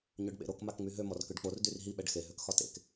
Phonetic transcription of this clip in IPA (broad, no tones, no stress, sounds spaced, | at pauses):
ɲ ø ɖ ɓ ḛ ɾ o k m a k ŋ͡m y ɦ ø m ɔ r k ø ɖ k͡p o r d y r ɦ i ɓ ɛ ɖ x e ɦ ø k x ɒ t ḛ k